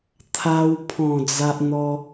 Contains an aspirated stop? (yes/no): yes